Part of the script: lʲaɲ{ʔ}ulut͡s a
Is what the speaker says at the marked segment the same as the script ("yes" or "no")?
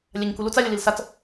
no